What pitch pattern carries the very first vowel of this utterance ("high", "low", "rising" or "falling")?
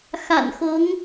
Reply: low